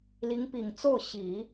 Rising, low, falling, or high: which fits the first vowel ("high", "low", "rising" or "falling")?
rising